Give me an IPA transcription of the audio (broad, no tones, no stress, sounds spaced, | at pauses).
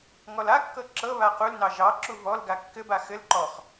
ŋ ɔ l a kː ɤ ǁ ɤ β a q u l n ɑ ʒ ɑ ǁ u v ɔ l ɡ a kː ɘ b a x ɘ l ǃ ɔ χ